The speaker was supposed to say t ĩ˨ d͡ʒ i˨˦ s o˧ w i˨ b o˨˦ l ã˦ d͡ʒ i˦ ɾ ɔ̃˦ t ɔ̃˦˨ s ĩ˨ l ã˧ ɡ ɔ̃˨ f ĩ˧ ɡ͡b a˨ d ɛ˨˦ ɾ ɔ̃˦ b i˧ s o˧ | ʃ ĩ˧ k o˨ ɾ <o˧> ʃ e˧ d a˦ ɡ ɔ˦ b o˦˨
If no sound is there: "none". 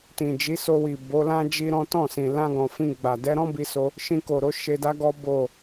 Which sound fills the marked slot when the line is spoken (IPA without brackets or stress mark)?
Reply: o˧